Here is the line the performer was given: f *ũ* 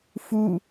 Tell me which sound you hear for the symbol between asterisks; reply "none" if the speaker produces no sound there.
u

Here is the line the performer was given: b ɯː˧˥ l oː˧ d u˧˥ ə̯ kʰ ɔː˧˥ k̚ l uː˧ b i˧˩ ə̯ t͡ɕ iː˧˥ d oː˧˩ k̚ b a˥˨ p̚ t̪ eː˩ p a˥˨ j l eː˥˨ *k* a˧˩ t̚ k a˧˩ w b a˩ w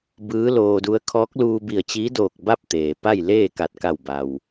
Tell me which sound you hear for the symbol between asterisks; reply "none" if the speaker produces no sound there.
k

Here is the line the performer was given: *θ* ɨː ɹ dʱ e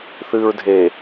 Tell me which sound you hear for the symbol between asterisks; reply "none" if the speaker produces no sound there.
θ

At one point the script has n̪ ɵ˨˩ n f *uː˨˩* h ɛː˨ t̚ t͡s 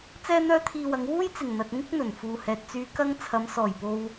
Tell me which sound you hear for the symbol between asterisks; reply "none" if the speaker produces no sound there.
uː˨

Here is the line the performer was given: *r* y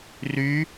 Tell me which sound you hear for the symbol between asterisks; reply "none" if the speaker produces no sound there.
r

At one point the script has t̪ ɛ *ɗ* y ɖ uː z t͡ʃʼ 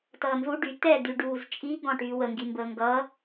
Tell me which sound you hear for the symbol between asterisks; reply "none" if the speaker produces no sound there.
d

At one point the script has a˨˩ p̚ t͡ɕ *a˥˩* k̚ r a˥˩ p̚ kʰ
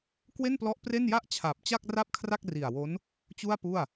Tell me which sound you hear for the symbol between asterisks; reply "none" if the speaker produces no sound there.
a˥˩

